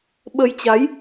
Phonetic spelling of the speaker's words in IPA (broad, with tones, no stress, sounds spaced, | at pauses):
ɓ ə˧ j t͡ɕ a˨˦ j